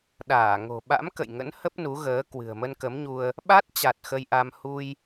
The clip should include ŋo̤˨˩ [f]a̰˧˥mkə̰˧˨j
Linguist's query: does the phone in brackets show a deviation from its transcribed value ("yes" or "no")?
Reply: yes